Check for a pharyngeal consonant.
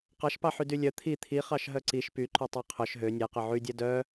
present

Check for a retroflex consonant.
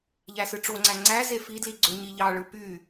present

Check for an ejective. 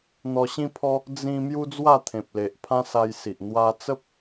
absent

